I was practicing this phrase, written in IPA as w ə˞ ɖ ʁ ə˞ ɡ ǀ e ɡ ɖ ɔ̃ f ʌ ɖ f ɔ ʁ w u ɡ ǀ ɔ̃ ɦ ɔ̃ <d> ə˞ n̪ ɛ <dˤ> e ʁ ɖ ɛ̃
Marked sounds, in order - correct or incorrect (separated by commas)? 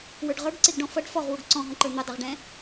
incorrect, correct